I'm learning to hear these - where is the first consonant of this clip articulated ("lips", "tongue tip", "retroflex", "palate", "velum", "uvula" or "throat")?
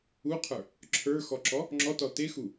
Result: uvula